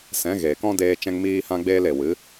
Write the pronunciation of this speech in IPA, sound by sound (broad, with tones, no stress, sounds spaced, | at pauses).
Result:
s ɛ̃˨˦ ɣ eː˨ k ɔ̃˦ d eː˧ t͡ʃ ɛ̃˧ ŋ m iː˧ h ã˧ ɡ͡b eː˧ l e˨ w ɨ˨˦